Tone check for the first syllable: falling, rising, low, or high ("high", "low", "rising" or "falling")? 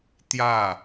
falling